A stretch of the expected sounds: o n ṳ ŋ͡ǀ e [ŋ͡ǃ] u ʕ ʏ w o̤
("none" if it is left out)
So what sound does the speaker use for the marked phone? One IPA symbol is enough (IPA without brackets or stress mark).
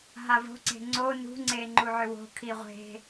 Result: ŋ͡ǃ